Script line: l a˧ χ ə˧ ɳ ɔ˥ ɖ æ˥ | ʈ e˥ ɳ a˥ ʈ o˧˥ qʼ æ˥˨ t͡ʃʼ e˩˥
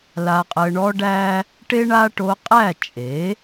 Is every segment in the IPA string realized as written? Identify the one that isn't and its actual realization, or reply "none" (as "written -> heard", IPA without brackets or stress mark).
χ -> qʼ